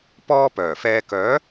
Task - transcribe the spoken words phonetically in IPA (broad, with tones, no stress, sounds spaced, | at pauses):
p ɔː˧ p œː˨˩ f ɛː˧ k œː˨˥